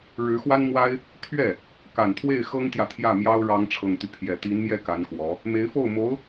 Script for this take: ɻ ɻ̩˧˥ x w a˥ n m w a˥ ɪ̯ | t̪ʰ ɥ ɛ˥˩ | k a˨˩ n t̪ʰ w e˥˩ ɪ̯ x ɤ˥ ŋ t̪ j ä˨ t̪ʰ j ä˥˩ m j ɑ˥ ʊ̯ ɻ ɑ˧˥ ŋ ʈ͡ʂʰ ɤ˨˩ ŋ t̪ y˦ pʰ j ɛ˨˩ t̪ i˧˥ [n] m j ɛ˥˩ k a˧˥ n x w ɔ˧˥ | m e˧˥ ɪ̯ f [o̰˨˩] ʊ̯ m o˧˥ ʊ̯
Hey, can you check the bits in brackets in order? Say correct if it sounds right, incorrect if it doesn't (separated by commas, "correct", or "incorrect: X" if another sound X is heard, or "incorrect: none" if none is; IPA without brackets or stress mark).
correct, incorrect: o˥˩